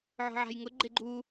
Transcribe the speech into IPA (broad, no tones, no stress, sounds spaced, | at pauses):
ʕ ɔ̤ ʕ a̤ j ŋ ʊ ɡ͡ǃ e ɡ͡ǃ u